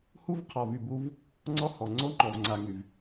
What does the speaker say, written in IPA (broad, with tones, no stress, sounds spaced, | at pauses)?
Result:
h u˦ v qʰ ɔ˨ v y˨ b u˦ v | ŋ͡ǀ ɔ˦ h ɔ˨ ŋ͡ǀ o˦ ŋ͡ǃ ɔ˨ v ŋ͡ǀ a˨ ŋ y˨ v